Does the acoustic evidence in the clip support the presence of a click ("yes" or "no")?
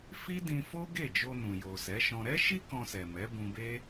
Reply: no